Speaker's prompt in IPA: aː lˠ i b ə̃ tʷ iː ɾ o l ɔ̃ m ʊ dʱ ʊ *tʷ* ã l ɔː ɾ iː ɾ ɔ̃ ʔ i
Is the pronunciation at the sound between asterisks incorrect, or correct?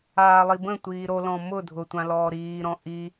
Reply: correct